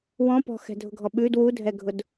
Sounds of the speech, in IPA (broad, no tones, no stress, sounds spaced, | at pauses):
w ɔ̃ p ɔ̤ x ɛ̤ dʱ ʊ ɡʱ ɔ ɓ ʉ d w u dʱ ɛ ɡʱ ʊ d